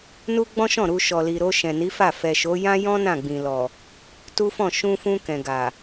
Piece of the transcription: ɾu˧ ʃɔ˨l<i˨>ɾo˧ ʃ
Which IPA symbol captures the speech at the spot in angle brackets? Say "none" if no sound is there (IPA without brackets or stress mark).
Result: i˨